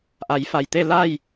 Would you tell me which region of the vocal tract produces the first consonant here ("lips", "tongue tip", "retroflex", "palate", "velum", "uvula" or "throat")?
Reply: throat